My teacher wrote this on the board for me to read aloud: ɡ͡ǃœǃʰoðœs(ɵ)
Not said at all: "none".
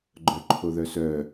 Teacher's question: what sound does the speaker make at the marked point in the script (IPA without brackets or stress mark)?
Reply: œ